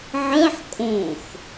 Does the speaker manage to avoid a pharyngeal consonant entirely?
no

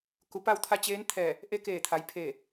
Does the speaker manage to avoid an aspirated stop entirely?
no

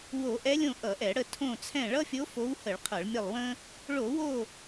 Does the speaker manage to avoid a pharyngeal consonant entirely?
yes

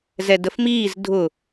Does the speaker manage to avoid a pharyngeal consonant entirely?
yes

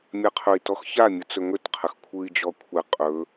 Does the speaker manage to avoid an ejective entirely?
no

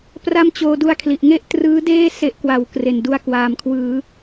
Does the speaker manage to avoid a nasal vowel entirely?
yes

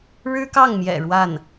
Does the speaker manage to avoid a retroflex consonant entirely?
no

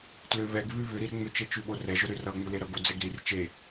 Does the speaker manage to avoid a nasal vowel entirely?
yes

